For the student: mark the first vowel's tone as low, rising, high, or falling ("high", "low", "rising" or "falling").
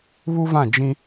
high